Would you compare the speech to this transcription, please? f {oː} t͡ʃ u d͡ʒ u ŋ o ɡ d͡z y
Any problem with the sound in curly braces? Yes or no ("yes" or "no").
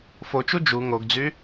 yes